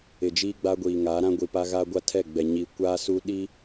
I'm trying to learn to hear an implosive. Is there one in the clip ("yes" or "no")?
yes